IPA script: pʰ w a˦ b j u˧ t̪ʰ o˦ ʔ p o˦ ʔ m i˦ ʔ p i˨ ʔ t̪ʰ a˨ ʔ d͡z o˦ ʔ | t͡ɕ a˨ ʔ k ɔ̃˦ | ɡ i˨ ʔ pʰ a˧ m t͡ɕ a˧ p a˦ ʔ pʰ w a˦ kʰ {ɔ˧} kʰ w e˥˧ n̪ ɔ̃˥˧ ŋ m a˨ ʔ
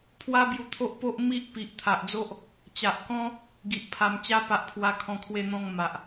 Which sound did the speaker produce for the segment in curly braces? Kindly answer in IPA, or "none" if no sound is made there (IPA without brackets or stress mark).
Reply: ɔ̃˧